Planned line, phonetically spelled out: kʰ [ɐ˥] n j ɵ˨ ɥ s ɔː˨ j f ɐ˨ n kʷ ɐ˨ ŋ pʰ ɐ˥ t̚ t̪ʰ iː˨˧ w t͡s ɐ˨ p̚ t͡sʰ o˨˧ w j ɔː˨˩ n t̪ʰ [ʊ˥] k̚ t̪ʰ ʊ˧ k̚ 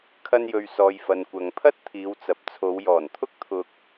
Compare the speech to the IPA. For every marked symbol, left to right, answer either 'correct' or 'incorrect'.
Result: incorrect: ɐ˧, correct

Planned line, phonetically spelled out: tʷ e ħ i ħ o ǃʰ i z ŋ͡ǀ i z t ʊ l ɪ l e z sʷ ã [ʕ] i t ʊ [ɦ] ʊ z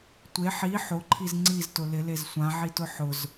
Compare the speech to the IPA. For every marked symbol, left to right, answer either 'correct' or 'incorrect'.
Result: correct, incorrect: ħ

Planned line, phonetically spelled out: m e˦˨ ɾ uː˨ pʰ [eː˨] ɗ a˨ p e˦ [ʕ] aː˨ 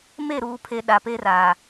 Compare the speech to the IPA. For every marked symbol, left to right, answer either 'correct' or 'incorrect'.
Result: incorrect: e˨, incorrect: r

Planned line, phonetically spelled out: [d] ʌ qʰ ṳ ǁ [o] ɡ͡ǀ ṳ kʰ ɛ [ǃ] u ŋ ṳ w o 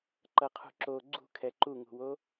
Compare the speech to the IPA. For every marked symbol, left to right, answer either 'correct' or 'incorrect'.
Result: incorrect: ǃ, correct, correct

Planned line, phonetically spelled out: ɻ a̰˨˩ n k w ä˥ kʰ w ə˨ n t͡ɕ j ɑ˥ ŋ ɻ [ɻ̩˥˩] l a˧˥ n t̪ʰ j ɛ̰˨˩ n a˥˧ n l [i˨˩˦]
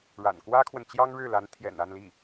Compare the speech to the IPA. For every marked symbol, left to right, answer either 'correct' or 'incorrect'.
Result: correct, incorrect: i˥˩

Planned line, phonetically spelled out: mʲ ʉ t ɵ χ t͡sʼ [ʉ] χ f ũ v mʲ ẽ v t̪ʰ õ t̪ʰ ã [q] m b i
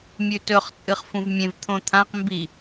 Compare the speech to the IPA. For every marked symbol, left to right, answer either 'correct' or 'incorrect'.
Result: incorrect: ɨ, correct

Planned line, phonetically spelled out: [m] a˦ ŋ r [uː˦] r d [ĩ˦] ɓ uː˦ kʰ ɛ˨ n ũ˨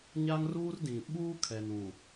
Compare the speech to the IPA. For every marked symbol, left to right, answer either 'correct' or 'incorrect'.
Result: incorrect: ɲ, correct, incorrect: ĩ˨

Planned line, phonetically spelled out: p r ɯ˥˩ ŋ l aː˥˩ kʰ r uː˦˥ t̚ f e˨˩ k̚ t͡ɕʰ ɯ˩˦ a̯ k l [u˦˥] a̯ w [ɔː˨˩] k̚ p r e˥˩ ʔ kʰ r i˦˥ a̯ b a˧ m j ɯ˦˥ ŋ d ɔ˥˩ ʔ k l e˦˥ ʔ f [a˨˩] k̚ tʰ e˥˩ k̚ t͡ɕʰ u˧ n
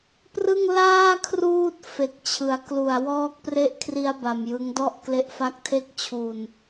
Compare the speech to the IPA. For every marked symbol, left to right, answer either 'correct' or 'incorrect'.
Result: incorrect: u˨˩, incorrect: ɔː˦˥, incorrect: a˦˥

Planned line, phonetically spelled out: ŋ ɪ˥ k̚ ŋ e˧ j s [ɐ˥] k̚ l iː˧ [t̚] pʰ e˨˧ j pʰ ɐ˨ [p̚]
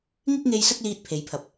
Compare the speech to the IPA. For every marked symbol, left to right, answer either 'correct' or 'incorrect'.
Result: correct, correct, correct

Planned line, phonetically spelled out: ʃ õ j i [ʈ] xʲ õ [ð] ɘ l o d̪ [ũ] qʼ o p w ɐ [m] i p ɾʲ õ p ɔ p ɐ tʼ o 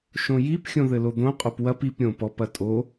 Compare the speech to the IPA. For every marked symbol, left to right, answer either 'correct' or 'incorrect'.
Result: incorrect: p, correct, incorrect: õ, incorrect: p

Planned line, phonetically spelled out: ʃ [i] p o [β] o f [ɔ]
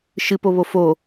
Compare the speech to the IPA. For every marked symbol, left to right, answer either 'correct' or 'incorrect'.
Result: incorrect: ɨ, correct, incorrect: o

